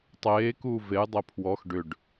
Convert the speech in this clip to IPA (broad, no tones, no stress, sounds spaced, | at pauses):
tˤ eː k uː v e j dˤ e pʰ w ɔ x ɖ ʏ ɖ